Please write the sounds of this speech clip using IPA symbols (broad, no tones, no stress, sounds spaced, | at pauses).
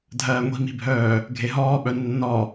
dʱ ɜː ŋʷ i̤ m i̤ bʱ œː | ɡʱ e ɦ ɔː ɓ œ nː ɔ